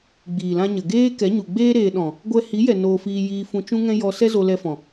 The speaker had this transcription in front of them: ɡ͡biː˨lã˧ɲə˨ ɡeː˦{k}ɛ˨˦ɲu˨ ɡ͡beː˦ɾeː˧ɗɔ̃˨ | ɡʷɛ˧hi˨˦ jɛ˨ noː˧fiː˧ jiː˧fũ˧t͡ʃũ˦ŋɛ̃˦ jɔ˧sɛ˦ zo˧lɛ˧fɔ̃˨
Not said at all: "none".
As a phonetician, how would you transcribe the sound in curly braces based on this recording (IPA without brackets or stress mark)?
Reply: k